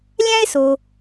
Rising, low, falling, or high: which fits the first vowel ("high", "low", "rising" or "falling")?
high